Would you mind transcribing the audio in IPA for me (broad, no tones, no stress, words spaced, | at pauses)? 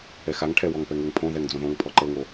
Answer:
ɛxaŋʈʰɛ wɔŋpɛŋøŋpʰõ ðɛŋd͡zõðõŋ pʰɔǃɤŋo